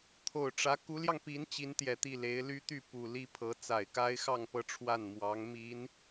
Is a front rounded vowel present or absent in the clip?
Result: present